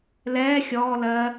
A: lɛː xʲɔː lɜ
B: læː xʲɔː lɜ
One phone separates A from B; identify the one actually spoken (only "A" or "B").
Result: A